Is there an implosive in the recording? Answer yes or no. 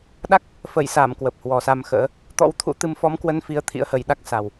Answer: yes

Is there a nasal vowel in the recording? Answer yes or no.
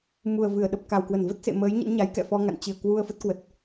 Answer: no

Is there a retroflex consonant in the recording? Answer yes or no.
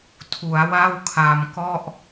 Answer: no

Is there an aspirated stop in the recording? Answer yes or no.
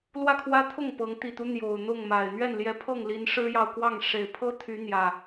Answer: yes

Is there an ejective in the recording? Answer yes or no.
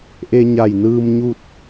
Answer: no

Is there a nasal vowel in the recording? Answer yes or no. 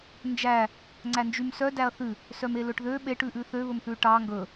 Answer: no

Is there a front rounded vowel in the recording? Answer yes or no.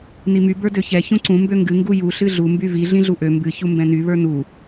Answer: yes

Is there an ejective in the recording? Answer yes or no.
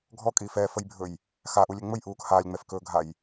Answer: yes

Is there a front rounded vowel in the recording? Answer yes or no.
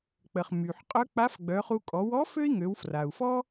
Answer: yes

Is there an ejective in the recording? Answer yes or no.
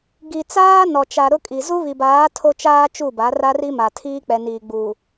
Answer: yes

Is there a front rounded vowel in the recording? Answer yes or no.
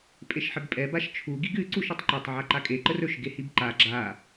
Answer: no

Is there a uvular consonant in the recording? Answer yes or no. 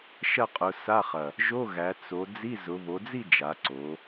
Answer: yes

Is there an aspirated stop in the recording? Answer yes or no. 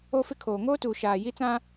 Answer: yes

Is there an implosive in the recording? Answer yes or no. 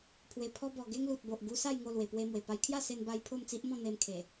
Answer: no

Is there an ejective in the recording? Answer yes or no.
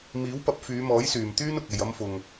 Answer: no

